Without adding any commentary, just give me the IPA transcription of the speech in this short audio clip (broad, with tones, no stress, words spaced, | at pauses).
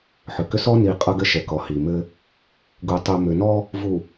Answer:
ħʏ˨kʏ˦ sɔ˦ni˨ qʼʌ˦ɡɘ˦ʃɛ˨kɔ˨ hi˨ mɘ˦ | ɡu˨tˤu˨ mʏ˨nɔ˦ | vu˨